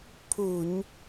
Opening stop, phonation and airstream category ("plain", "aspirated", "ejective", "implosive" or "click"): aspirated